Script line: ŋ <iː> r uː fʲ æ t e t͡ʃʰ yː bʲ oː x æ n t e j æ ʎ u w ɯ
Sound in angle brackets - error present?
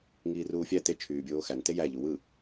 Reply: no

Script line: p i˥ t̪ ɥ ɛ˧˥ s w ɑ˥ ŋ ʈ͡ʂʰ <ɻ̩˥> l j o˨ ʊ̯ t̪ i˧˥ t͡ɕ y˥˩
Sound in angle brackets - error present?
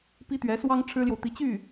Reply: no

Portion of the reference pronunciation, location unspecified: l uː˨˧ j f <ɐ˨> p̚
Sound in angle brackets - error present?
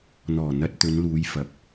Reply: no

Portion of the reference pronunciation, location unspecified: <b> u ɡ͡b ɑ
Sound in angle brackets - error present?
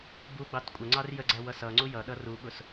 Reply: no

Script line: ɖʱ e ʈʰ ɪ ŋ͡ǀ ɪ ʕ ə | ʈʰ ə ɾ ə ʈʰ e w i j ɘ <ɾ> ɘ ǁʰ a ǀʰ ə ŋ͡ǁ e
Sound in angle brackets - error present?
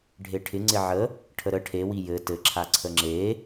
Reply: yes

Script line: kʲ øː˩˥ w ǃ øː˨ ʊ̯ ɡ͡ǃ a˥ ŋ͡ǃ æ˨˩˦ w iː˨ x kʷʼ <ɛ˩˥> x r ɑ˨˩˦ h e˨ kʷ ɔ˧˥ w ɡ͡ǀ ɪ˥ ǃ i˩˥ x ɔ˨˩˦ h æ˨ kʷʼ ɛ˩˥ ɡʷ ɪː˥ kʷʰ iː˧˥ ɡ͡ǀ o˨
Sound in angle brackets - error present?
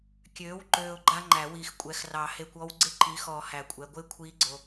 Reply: no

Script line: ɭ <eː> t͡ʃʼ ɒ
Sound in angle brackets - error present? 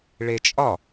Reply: yes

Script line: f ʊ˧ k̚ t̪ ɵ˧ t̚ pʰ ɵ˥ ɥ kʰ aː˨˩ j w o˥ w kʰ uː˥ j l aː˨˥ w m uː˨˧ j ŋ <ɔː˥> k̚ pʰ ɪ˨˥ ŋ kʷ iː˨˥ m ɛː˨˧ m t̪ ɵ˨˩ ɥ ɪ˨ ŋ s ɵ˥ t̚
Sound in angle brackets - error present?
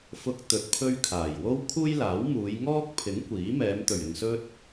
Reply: no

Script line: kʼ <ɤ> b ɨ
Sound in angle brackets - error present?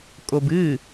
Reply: yes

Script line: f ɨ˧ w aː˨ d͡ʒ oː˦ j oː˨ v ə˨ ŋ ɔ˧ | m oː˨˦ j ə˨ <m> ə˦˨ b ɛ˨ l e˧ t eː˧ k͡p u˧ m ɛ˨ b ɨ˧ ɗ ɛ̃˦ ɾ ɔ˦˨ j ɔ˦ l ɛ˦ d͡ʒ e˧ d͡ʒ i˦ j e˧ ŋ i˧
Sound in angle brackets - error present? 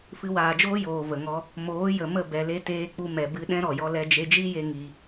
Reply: no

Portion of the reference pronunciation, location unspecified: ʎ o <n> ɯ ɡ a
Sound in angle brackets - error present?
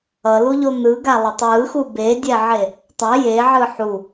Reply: no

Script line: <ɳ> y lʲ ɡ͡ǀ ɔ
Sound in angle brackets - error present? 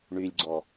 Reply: no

